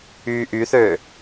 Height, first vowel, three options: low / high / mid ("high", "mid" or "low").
high